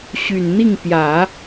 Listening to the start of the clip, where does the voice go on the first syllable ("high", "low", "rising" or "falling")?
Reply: low